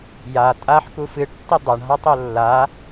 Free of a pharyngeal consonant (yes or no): no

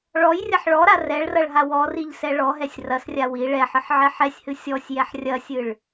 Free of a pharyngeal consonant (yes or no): no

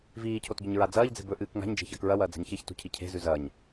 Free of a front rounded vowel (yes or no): yes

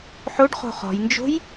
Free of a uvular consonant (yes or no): no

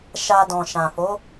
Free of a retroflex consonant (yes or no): yes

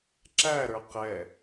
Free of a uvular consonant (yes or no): no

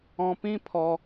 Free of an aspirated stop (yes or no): no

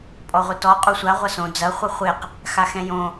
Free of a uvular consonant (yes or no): no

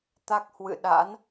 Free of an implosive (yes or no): no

